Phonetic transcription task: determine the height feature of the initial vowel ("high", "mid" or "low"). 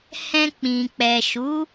mid